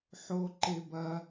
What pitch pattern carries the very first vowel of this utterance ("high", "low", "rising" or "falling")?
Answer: high